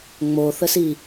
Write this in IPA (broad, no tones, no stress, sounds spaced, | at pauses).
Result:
ŋ͡m o θ ə s i